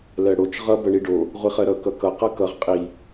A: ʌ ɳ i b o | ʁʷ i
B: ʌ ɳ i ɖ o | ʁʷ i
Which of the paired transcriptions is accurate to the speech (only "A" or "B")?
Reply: B